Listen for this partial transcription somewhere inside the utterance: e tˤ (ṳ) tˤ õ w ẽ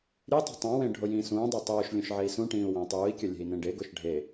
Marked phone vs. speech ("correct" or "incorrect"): correct